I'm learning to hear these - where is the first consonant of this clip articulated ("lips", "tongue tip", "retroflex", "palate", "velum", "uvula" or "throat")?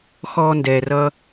velum